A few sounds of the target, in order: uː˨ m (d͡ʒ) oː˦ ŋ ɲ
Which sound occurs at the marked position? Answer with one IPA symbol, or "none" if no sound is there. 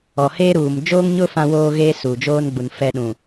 d͡ʒ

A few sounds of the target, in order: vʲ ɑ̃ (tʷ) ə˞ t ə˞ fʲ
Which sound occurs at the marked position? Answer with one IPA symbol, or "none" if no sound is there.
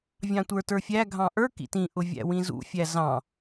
tʷ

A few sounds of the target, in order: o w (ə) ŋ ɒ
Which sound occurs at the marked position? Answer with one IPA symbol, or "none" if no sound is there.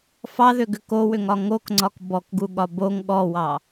ʏ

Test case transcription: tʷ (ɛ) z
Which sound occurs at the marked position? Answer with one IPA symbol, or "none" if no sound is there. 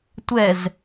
ɛ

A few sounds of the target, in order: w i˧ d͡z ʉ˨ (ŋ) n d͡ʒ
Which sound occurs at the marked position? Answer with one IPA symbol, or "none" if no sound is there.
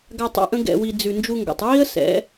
none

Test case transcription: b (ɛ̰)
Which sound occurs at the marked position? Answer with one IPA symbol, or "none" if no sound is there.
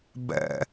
ɛ̰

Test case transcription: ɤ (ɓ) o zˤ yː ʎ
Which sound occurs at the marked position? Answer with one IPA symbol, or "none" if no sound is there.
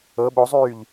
ɓ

